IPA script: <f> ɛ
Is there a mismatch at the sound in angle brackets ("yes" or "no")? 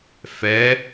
no